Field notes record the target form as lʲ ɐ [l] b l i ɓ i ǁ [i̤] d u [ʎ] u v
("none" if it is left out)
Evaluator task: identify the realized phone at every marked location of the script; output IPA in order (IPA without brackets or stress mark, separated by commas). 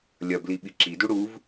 none, i, ɽ